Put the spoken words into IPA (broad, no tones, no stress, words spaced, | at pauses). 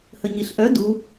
həɲiɬʔœ du